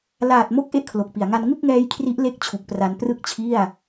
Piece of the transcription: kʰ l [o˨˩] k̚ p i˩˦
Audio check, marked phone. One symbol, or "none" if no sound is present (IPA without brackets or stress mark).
o˨˩